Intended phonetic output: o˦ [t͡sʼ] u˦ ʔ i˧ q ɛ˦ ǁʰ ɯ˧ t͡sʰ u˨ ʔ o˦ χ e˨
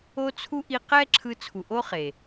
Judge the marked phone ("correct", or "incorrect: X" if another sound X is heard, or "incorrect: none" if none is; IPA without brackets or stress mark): incorrect: t͡sʰ